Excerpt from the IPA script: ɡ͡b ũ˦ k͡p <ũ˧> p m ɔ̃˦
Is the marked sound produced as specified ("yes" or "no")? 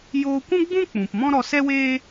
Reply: no